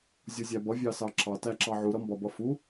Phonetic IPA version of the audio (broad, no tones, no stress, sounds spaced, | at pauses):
zʲ u zʲ æ b ʌ vʲ ɑ s ɑ ǁ ɑ t æ ǁ ɑ ʕ u ɾ ʌ m b ɒ b ʌ f u